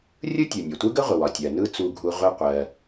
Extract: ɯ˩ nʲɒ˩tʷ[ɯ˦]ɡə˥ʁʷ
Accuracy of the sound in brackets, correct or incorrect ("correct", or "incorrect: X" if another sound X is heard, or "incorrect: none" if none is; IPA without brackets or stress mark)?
incorrect: ɯ˥